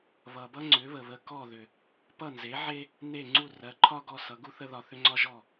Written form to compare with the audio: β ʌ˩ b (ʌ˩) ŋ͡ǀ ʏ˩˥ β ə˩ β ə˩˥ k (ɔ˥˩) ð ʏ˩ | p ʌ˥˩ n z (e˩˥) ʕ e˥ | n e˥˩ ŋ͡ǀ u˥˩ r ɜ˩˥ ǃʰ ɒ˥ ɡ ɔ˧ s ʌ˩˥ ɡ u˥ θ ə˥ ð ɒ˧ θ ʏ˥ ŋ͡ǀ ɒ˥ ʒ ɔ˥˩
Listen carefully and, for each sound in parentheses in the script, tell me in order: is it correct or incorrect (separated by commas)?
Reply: incorrect, correct, correct